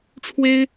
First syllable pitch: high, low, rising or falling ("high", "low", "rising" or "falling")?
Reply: high